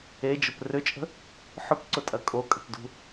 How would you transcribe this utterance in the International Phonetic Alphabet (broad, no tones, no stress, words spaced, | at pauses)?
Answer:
ed͡ʒʊp rʏt͡ʃʼə̤ | ħʊpǀʊtʼɐ kʼokʼə̤pdṳ